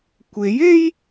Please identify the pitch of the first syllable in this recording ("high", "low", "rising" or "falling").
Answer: rising